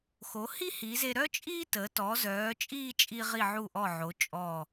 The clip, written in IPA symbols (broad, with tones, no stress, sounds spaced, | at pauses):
x o˩˧ h i˥ h i˩˧ z e˧ ɾ œ˥ t͡ʃʼ iː˥ t əː˩˧ t ɔ˩˧ z œː˩˧ t͡ʃʼ iː˥˧ t͡ʃʼ i˧ ʁ i˧˩ ʕ u˧˩ ʔ ɔ˧˩ ʕ o˩˧ t͡ʃʼ ɔ˧˩